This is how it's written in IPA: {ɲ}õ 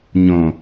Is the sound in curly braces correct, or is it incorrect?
correct